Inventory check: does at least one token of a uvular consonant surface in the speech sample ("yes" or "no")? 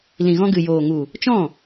no